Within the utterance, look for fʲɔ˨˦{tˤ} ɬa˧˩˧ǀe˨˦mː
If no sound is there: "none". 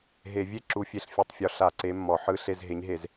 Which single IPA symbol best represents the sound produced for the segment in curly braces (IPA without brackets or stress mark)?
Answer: none